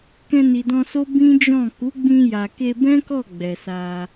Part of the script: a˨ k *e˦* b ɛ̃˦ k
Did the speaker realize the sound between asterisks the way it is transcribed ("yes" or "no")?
no